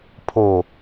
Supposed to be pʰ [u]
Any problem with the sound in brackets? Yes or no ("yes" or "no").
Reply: yes